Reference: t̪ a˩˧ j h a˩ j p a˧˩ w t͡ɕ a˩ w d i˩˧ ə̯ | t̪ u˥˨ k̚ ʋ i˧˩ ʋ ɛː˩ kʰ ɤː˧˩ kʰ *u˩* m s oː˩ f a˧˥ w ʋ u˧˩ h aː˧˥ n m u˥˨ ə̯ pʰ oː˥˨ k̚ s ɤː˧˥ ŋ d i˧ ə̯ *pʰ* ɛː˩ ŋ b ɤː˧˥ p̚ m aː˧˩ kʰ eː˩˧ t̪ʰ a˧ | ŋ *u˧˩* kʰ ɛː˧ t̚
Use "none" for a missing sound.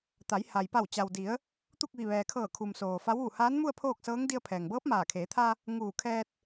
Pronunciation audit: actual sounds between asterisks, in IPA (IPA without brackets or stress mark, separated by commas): u˩, pʰ, uː˧˩